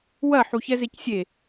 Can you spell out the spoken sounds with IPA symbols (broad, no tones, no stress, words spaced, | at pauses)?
wɐ ħuçɛzecsʲe